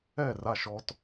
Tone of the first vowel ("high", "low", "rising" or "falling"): falling